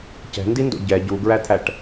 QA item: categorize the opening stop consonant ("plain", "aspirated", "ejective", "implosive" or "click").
plain